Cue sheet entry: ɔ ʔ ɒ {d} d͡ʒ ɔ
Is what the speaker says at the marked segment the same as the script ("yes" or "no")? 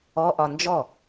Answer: no